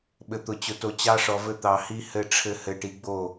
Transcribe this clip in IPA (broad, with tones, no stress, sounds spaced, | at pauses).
ɓ ɘ˨ t̪ ʊ˨ t͡ɕ ʊ˨ t o˨ t͡ɕ ɑ˦ ʂ ɔ˨ v ɘ˦ t̪ ɑ˨ h i˦ h ɘ˦ ʈ͡ʂʰ ɘ˦ h ɘ˨ ʈ i˨ ɡ͡b o˦˨